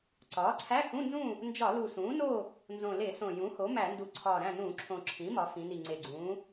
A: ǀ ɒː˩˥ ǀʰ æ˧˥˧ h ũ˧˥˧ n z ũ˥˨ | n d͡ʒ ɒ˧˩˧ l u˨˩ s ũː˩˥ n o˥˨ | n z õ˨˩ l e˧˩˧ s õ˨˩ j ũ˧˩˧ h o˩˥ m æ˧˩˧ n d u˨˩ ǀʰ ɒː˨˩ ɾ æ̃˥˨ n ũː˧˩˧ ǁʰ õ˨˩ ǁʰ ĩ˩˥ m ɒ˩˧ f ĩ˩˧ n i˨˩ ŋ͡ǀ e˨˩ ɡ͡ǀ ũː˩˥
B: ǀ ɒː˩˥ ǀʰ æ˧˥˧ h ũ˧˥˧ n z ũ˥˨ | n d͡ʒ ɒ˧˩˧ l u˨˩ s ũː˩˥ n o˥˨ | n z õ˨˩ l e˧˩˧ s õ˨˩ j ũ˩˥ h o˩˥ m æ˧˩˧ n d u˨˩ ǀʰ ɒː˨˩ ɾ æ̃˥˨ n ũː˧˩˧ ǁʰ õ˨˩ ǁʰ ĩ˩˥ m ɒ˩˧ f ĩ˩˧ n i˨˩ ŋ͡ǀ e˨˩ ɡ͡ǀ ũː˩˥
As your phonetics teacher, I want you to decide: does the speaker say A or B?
B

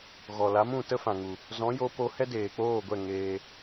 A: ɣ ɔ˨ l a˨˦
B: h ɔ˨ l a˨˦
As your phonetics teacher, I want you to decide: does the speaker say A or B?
A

